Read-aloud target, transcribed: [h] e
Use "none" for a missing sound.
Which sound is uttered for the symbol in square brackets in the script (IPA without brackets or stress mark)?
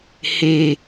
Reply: h